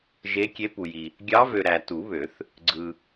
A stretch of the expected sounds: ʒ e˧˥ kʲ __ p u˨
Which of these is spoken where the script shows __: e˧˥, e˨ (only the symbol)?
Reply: e˧˥